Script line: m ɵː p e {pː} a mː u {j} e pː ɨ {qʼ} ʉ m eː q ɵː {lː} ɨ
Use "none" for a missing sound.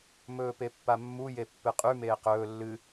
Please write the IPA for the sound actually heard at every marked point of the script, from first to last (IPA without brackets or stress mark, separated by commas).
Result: pː, j, qʼ, lː